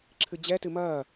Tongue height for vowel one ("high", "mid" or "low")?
high